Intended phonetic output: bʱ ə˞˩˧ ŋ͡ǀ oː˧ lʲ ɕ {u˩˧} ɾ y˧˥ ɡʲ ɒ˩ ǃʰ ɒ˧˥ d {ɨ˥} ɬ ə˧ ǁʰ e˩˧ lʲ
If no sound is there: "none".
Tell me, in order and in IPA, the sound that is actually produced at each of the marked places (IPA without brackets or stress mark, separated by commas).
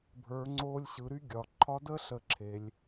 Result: ɯ˩˧, ə˥